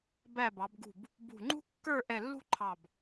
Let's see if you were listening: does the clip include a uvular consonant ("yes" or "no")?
no